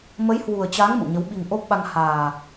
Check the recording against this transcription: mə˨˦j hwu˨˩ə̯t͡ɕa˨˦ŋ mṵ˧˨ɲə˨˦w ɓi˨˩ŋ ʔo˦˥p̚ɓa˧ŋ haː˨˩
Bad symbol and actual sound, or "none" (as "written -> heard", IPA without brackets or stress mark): none